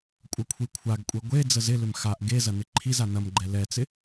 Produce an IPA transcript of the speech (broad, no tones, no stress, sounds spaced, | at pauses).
kʷʼ ɐ kʷʰ i kʷʰ a ɡ kʷʼ e ɡʷ e d͡z ə z ɪ l ʏ m x a ʔ ɡ e z ɐ n ɪ ǃʰ i z a n ɐ m ɡ͡ǃ ɛ l ɛ t͡s ɪ